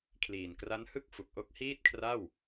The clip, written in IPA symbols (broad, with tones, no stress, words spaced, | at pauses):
kʰliː˨˩nkra˦˥nhɯ˥˩k̚ fu˨˩k̚ʔo˦˥k̚hiː˥˩t̚kʰra˥˩w